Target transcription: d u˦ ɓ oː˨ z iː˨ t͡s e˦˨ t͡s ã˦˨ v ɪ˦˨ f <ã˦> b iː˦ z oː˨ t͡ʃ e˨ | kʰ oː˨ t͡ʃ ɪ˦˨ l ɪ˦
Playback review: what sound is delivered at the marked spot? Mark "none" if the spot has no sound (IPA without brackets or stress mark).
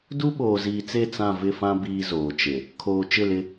ã˦